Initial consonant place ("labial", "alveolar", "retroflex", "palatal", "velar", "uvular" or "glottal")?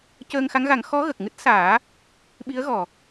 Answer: palatal